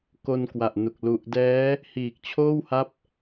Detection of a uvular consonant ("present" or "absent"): absent